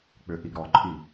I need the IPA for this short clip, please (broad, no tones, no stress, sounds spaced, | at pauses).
k͡p ʏ ʔ i ɡ ɾ ɔ ǃʼ i